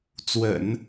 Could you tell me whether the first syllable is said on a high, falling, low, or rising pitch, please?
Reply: low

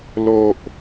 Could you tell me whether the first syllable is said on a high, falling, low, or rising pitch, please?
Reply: low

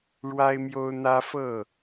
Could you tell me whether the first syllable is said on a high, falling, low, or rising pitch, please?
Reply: high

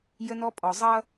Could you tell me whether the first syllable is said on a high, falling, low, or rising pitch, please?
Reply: high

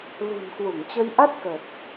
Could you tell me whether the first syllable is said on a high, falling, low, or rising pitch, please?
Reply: low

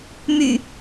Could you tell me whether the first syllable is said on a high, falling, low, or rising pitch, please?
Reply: low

